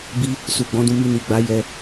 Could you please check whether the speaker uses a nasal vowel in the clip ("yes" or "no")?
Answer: yes